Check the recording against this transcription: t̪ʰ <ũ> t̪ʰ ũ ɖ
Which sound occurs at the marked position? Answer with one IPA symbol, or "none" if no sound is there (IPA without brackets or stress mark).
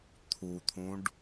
u